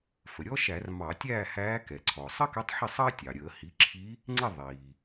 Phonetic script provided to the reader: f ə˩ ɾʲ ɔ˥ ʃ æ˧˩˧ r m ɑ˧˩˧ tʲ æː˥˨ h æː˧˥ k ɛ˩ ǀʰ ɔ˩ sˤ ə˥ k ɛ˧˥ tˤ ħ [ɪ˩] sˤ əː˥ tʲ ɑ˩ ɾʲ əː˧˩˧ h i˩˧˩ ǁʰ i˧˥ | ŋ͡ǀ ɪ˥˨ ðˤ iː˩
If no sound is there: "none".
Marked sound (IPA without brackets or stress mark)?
ɪ˥˨